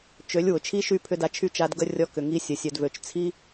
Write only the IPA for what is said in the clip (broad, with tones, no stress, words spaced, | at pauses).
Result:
t͡ʃø˨˦lʲ wʊ˨t͡ʃʰi˦ʃy˦˨ pʰʏ˦da˧t͡ʃʰy˦t͡ʃa˧d ɡə˧ rʲɔ˧ kʏ˨ŋi˧ sʲə˨sʲœ˨dvø˨t͡ʃ t͡sʰi˦